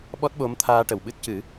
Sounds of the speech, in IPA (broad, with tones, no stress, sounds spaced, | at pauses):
ɓ ɔ˦˥ t̚ ɓ o˧˥ m t̪ʰ aː˧ ʈ ə˨˩ w ɓ ɨ˦˥ t̚ c ɨ˨˩˦